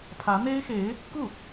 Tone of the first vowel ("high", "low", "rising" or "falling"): rising